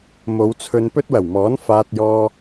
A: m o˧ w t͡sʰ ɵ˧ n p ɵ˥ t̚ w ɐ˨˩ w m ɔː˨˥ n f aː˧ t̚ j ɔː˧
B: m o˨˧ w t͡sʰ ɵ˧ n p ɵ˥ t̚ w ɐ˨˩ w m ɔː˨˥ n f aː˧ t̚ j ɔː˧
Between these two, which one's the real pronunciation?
B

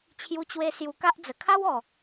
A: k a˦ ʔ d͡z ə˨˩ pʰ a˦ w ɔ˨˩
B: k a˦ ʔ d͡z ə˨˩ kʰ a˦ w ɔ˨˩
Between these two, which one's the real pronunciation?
B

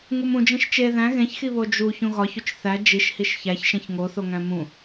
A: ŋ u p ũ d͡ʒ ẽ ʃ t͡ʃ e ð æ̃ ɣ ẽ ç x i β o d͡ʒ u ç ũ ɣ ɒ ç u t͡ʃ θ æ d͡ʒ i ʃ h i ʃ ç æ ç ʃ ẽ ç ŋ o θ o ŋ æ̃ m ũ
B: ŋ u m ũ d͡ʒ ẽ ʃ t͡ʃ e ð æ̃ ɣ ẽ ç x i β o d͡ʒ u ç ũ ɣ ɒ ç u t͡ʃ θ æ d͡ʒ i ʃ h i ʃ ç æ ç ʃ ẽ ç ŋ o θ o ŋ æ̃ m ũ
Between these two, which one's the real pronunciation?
B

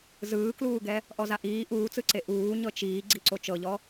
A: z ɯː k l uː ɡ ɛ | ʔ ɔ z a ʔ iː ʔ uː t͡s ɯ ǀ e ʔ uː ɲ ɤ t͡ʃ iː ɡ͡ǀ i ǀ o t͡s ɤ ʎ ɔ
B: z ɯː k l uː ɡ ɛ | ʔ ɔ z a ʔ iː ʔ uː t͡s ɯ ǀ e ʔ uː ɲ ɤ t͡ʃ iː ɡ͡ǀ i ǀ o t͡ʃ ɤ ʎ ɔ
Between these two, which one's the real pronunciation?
B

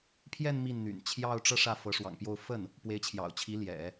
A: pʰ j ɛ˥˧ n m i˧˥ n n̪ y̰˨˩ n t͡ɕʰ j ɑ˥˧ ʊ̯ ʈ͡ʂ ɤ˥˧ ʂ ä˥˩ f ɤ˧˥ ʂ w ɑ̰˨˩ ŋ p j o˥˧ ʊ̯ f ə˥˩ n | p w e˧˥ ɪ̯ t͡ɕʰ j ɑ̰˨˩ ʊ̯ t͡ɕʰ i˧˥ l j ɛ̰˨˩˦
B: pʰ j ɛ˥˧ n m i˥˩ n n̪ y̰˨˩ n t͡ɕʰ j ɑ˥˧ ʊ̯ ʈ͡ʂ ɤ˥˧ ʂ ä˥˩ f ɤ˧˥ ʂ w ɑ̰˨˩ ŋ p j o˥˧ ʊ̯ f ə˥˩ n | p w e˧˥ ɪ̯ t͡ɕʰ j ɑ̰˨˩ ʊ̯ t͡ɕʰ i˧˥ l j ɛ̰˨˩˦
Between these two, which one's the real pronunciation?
B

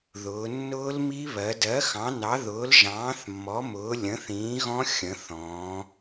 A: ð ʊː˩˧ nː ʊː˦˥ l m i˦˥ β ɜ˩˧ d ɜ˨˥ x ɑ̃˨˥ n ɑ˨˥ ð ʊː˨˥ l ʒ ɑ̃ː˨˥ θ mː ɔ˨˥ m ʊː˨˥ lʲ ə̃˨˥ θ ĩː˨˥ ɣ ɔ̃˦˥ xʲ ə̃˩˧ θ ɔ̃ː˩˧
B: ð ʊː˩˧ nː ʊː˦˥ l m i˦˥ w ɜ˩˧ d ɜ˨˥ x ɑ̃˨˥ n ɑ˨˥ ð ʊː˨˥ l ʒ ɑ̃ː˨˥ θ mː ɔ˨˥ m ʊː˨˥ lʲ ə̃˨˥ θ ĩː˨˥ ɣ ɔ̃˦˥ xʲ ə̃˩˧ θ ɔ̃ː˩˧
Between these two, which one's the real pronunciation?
A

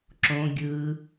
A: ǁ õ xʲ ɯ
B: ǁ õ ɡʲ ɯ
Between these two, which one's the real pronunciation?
B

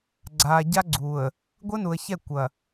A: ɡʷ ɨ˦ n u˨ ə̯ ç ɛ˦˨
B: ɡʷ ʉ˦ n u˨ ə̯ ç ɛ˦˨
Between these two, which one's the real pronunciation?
A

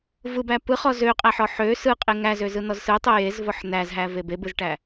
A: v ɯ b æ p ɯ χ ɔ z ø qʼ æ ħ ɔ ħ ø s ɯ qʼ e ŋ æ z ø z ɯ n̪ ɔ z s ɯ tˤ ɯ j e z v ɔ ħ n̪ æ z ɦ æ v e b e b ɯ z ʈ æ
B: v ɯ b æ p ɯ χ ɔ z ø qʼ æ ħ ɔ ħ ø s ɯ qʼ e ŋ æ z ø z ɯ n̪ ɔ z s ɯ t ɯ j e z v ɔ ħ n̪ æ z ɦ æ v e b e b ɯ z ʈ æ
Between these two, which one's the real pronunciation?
A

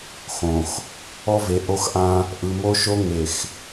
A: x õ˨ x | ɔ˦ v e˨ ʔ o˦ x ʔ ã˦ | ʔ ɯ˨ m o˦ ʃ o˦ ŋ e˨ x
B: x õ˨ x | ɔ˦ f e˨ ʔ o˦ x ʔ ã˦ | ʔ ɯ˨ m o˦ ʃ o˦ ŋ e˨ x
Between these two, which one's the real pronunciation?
A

